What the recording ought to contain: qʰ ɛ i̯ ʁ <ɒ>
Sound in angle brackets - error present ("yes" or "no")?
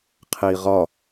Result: no